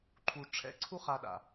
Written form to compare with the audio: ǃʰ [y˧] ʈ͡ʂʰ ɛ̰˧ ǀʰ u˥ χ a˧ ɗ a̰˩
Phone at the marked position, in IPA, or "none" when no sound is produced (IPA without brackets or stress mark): u˧